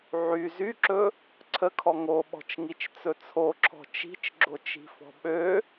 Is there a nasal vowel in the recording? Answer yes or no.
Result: no